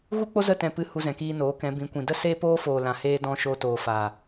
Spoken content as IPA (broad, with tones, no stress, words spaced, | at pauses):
ɣu˦k͡po˦zə˦˨ tɛ̃˦˨pɨ˦˨ hu˧zɛ̃˨kiː˧ noː˨˦kɛ̃˨˦bĩ˨˦kʷĩ˨ də˦seː˦ poː˦foː˨lã˨heː˧ dɔ̃˧ʃo˧toː˨fa˨